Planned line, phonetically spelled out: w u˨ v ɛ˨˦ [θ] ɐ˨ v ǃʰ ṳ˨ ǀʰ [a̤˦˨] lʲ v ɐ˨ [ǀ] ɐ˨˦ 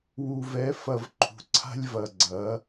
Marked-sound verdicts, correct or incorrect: incorrect, incorrect, incorrect

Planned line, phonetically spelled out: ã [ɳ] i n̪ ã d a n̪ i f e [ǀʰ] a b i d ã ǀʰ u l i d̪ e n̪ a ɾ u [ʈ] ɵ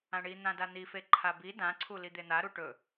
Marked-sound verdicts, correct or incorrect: correct, incorrect, correct

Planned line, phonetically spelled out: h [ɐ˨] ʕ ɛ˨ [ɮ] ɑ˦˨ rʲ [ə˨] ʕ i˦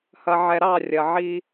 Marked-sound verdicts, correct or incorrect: correct, incorrect, incorrect

